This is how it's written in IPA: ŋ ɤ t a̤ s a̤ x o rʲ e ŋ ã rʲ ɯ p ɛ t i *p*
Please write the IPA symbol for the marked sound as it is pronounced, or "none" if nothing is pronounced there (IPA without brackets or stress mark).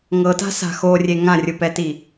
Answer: none